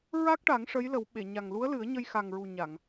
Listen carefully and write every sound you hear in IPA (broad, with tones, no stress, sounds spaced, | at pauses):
ɹ a˦˥ k̚ ʈ a˨˩˦ ŋ ʂ ə˧˥ j l ə˨˩˦ w ɓ e˨˩˨ ɲ a˨˩ ŋ l u˧˥ ə̯ l ɨ˨˩˦ ə̯ ɲ ə˧ j x a˨˩ ŋ ɹ u˨˩ ɲ a˨˩˨ ŋ